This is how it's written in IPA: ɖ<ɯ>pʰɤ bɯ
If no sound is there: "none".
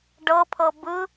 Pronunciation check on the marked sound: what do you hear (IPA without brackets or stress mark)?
ɤ